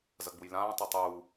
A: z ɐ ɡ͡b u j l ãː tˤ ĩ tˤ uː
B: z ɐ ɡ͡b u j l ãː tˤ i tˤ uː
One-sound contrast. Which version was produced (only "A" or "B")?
B